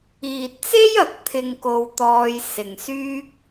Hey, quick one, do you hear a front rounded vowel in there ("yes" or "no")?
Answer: yes